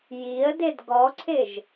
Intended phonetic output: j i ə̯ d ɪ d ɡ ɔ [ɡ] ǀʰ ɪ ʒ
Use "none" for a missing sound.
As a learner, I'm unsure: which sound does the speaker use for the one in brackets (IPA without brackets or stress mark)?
none